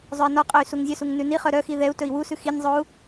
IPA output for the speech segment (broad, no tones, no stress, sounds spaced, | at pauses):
zˤ œ i̯ n ɔ qʼ œ y̯ s u ŋ zʲ œ s u ŋ n ʉ n i χ œ ɾ œ x i ð ɛ u̯ t ɵ i̯ w u s ʉ x i nʲ zˤ o u̯